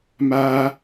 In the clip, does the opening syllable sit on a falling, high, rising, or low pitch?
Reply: high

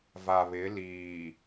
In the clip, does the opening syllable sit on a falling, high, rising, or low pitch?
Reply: low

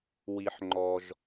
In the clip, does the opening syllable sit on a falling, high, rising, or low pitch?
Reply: low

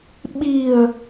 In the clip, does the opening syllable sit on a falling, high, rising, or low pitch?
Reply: low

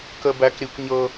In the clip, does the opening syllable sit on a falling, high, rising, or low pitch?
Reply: high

